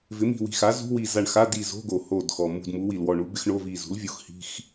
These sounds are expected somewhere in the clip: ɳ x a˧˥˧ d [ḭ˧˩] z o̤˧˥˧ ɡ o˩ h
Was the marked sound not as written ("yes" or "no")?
yes